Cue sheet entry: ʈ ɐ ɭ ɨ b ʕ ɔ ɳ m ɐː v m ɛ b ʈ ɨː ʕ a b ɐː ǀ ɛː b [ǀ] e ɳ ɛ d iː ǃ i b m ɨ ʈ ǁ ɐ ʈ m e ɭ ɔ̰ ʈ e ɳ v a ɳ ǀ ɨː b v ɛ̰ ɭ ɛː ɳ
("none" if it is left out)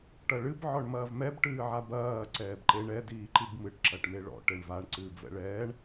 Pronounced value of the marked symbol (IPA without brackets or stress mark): ǃ